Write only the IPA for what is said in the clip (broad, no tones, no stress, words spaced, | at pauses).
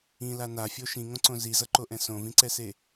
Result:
ĩla nafʲo ʃĩŋõǀõ zizʌǃoʔɛ̃ sõvĩǀɛse